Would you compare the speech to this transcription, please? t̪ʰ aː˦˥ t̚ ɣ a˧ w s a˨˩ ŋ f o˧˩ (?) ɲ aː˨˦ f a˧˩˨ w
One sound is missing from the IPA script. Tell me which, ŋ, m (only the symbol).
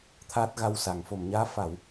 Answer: m